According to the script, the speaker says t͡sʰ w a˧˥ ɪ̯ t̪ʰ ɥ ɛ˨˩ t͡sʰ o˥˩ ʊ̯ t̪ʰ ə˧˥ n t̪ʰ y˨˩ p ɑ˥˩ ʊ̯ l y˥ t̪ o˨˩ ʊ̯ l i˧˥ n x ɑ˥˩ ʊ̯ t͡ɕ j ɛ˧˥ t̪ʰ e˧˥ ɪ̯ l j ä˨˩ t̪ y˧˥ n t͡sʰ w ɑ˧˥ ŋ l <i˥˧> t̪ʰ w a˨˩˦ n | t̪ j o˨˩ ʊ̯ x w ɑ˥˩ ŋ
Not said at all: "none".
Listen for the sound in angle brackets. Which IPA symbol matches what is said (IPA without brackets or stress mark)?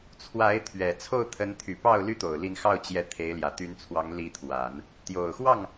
i˧˥